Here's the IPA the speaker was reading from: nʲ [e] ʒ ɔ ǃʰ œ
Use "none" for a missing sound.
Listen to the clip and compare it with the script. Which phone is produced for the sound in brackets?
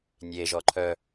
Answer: e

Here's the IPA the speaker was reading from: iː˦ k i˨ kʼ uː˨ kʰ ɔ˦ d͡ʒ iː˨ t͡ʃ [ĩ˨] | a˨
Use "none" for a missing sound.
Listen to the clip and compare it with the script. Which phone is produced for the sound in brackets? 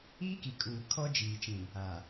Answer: ĩ˨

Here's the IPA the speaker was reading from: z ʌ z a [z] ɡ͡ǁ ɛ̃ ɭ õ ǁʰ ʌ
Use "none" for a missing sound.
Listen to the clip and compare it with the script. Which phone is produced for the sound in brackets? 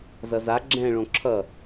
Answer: none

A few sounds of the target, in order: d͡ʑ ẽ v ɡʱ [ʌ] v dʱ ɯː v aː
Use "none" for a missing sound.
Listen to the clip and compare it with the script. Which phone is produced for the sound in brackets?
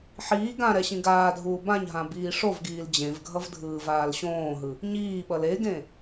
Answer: ʌ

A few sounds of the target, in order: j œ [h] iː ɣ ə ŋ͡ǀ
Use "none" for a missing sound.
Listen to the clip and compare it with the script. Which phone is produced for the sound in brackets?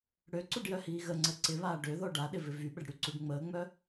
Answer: h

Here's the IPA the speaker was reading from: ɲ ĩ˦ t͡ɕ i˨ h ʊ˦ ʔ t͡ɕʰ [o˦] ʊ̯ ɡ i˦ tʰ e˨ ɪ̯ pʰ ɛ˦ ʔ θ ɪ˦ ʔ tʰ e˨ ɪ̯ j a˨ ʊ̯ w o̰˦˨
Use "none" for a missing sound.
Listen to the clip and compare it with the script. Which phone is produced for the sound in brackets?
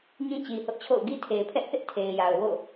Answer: o̰˦˨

